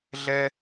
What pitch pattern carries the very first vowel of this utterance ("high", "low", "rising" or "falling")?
high